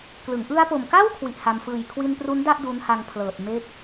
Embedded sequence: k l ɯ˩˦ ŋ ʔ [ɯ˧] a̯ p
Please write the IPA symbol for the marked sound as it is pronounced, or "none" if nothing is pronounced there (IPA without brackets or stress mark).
ɯ˧